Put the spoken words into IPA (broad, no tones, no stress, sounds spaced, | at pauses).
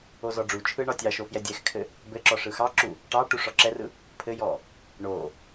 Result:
o z ɔ ɖ͡ʐ u t͡ʃʰ ɯ ɳ ɒ tʲ ɑ ʃ o f j ɛ dʲ ɛ x kʰ ɘ | b ɘ ǁ ɔ ʂ ɯ x ɑ ǁ u | ʈ ɑ ʈ u ʂ ɔ ǁ ɛ r ɯ | pʰ ɘ j ɔ | ɳ o